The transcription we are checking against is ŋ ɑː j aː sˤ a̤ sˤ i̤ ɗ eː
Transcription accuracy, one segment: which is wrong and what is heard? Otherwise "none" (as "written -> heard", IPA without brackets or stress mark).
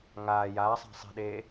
ɑː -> aː